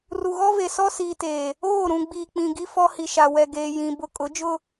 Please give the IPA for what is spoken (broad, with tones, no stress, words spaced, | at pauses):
ru˨ɣɔ˦ve˨ sɔ˦siː˨teː˨ | oː˦˨ ɾũ˨ ɡ͡biː˨k͡pĩ˨ɡi˦ fɔ˦hi˨ʃa˨ wɛ˨ɡeː˨jĩ˨ bʊ˦ kʼʊ˨˦d͡ʒʊ˦